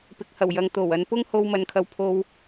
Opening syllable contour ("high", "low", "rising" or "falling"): low